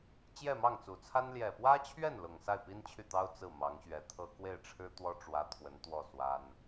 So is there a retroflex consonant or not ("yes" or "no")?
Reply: yes